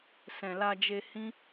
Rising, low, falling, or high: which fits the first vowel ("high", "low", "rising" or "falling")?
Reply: low